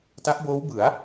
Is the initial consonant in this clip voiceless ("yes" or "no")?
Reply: yes